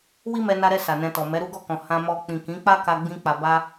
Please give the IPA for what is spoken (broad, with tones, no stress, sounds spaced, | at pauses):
w i˦ m ɛ˧ n a˧ ɾ ɛ˧ s a˨ n ɛ̃˧ t ɔ˨ m ɛ˨˦ ɾ u˦ ɡ ɔ˦˨ k ɔ̃˨ h ã˧ m ɔ˧ k͡p ĩ˨ k ĩ˨˦ k͡p a˦ k a˧ ɡ͡b ĩ˧ k͡p a˨ b a˧